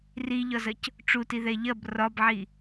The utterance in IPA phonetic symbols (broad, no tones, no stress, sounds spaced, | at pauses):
r i ʎ ɒ z ɐ c | ʈ͡ʂ u t i ð ɛ ʎ ɐ b r ɒ b ʕ i